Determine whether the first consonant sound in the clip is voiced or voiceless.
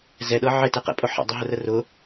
voiced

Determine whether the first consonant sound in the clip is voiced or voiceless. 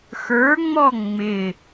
voiceless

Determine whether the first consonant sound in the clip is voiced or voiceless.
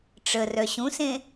voiceless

